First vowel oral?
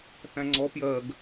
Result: no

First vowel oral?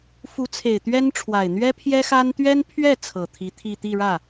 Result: yes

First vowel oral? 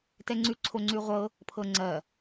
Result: yes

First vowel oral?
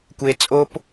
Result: yes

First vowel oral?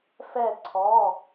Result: yes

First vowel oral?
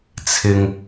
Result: yes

